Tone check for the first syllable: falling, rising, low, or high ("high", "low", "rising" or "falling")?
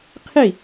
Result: falling